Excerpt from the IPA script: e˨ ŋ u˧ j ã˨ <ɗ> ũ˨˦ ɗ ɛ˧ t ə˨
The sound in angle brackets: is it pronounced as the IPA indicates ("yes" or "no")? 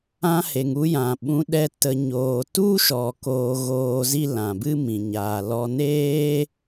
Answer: no